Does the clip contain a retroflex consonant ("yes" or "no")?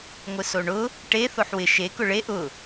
yes